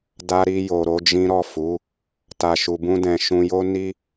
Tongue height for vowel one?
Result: low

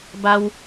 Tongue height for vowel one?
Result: low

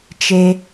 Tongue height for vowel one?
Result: mid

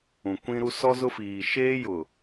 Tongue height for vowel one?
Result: high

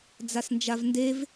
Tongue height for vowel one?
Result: low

